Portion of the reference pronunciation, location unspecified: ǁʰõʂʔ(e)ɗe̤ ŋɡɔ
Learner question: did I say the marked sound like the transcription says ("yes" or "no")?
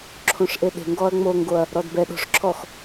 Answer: yes